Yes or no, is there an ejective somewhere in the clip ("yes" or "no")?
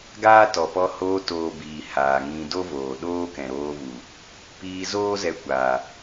no